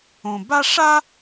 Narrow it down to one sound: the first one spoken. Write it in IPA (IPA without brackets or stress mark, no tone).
õ